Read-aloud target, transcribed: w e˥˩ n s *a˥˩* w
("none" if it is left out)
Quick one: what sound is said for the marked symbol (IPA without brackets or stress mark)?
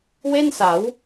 a˩˦